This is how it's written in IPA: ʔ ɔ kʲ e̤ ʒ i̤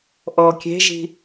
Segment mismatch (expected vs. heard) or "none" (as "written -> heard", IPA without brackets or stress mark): none